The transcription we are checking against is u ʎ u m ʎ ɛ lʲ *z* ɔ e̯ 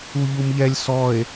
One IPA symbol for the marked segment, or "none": s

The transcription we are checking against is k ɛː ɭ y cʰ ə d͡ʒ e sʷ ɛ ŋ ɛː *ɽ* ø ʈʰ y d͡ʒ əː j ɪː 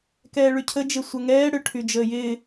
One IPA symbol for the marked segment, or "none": ɽ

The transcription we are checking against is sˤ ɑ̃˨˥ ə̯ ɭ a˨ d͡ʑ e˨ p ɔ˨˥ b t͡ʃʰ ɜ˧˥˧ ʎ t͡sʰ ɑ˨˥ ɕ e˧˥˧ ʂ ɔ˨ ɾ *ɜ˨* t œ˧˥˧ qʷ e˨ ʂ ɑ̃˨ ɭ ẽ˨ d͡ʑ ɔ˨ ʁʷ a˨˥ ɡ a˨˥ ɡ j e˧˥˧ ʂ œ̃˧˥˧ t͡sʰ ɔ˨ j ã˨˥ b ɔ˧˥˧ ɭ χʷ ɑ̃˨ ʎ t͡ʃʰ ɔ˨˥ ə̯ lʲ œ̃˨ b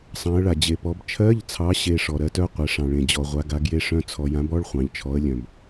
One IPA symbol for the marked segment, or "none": ɜ˨˥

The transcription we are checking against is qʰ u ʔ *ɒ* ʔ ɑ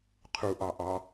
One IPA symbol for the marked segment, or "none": ɑ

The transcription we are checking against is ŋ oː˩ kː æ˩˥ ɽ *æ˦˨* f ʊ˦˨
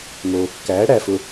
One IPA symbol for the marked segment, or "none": æ˦˨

